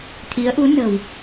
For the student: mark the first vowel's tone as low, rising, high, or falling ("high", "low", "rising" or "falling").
rising